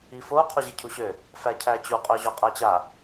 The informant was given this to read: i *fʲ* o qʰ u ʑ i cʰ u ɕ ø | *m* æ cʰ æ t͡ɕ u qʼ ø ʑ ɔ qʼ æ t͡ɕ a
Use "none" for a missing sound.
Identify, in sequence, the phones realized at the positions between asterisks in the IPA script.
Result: f, f

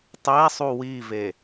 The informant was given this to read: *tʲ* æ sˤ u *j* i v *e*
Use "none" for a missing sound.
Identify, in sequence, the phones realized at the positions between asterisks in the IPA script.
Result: tˤ, w, e

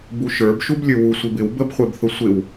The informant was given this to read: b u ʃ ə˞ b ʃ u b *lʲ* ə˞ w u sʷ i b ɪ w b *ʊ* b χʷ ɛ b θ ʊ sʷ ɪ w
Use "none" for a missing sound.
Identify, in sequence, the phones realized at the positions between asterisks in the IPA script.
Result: lʲ, ə

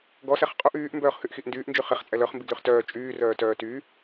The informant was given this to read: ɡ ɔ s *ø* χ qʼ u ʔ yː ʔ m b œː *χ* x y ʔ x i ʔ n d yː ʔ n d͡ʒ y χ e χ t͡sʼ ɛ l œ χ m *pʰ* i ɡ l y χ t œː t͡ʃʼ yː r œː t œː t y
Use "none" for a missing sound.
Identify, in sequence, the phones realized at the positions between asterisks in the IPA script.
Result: ɛ, χ, b

